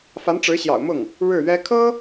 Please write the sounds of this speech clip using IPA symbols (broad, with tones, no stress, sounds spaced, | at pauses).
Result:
f a˧˥ n ʈ͡ʂ ɻ̩˧˥ ɕ j ɑ̰˨˩ ʊ̯ m ʊ˥˩ ŋ | ɻ ɻ̩˥˩ ɥ ɛ˥ kʰ ɤ˥